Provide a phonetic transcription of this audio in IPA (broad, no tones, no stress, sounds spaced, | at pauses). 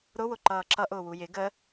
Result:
ɾ ʊ w ʊ ǃ ʌː ǁ ʌ ʔ ʊː w u j ɪ ɡ ə